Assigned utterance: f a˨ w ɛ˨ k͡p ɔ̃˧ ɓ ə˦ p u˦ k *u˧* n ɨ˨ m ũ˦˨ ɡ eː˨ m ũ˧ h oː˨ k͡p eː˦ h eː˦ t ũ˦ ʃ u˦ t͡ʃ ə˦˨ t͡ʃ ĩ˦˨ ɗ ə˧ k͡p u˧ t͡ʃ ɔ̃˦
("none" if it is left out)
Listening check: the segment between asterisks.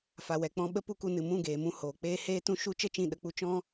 u˧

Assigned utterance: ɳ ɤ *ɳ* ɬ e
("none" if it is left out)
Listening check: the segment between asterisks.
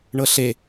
none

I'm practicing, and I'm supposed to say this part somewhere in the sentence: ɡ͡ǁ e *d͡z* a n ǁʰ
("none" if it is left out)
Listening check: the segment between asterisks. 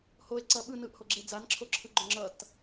d͡z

